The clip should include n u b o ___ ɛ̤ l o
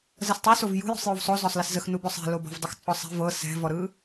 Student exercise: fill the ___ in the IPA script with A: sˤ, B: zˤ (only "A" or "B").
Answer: A